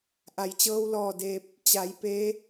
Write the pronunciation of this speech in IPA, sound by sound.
ʔa˩jt͡ɕɤː˧wlɔː˧˩ deː˧p̚ | t͡ɕa˩˧j peː˧˥

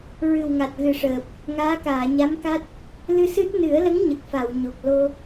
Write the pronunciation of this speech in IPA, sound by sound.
ɹɨ˨˩wŋa˨˩t̚ɣɨ˨˩ʂəː˨˩p̚ | ŋaː˧˥kaː˨˩˨ ɲa˧˥mka˦˥t̚ | lɨ˧sɨ˦˥t̚ nɨ˨˩˦ə̯lə˧˥ŋ ɲə˨˩k̚fa˨˩˨wɲo˨˩k̚ lo˧

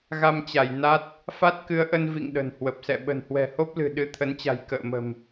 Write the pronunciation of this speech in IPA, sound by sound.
ɣa˧mt͡ɕa˧˩j na˦˥t̚ | fa˦˥t̚kɨ˨˦ə̯ʔə˧n vḭ˧˨ŋ ɗə̤˨˩nhwə˨˩p̚sɛ̰˧˨ ɓə̤˨˩nhwɛ̤˨˩ho˦˥p̚lɨ̤˨˩ ɗɨ˨˦t̪ʰə˨˦nt͡ɕa̤˨˩j kə̰ː˧˨mə̤˨˩m

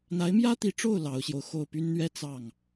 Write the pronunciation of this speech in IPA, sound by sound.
n̪a˧˥ɪ̯mjä˥t̪i˧˥ʈ͡ʂo˥˩ʊ̯ lɑ˧˥ʊ̯ɕjo˧ʊ̯ xo˥˩ʊ̯py˥nn̪ɥɛ˥ t͡sɑ˥˩ŋ

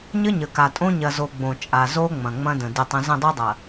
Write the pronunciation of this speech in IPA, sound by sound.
ɲə˦ɲə˨ka˨tʼõ˦ ɲɐ˨ zo˨ ɡ͡bõ˨t͡ʃʼa˨ zo˦ ŋ͡mɐ̃˨ŋ͡mɐ̃˦də̃˨ dɪ˦˨tˤɐ̃˦ zə̃˦˨dˤo˦dˤɐ˨

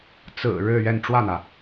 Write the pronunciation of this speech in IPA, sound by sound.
t͡sɹ̩˨˩ ɻɻ̩˥˧ɥɛ˥˧n ʈ͡ʂwä˥˩n̪ä˩

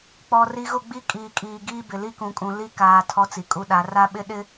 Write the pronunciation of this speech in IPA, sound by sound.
k͡pɔ˨ ri˨ɣʊ˦˨ɡ͡bi˦ kʼiː˨kʼiː˨ ɡiː˦bɪ˨ li˦kũ˨kʼũ˨ li˦kaː˨ tʰɔ˦t͡si˨kʼu˦ɗa˨˦ ra˦ɓɪ˦ ɗɪ˦

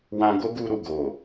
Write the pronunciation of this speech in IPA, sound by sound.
wã˧ ɡo˦ɡu˧ɾu˨ ɡo˨

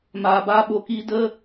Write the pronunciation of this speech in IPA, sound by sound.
maː˨baː˧ɓo˨kiː˧ də˦

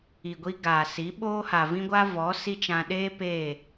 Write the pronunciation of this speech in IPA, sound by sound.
i˨ɡʷi˦ ɡaː˨si˨˦ɓoː˦ha˨ vĩ˦ɡʷa˦vɔ˨˦ si˦t͡ʃã˧ ɗeː˦ peː˦˨

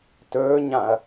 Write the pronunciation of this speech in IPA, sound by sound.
tɵːɲãɐ̯

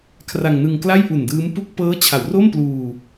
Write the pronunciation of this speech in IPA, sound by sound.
kʰra˧ŋnɯ˧ŋ kla˥˩jʔu˨˩ndɯː˦˥m pu˥˩k̚ pɤː˦˥t͡ɕʰa˩˦wro˥˩m pluː˧

